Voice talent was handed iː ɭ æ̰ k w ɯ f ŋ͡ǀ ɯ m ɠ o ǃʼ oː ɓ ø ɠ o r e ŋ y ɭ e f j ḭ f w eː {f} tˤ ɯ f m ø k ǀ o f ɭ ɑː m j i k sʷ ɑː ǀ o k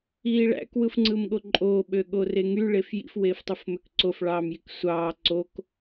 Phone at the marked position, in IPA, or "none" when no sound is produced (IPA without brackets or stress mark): f